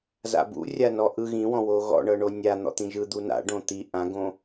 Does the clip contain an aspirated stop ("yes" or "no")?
no